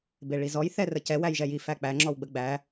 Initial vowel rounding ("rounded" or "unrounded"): unrounded